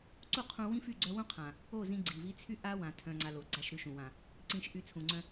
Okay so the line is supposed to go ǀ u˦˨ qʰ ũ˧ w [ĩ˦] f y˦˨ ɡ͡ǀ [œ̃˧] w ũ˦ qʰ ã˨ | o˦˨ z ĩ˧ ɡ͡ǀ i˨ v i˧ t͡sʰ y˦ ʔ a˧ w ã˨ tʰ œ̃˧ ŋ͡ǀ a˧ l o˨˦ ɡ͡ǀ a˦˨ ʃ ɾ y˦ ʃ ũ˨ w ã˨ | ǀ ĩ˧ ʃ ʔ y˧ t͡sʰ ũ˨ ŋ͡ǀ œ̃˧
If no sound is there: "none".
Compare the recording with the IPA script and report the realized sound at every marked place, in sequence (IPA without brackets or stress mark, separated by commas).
ĩ˦, œ˧